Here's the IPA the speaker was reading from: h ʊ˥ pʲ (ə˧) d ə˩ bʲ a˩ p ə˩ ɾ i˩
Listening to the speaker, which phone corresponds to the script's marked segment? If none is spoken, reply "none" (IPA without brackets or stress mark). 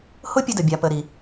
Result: ə˧